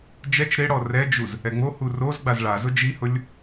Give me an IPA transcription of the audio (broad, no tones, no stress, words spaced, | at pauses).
d͡ʒɛt͡ʃ ɾɪ ɽɔrɛd͡ʒuz | ɛŋ͡mohu roz ɡ͡bazɭazʊ d͡ʒihʊlʲ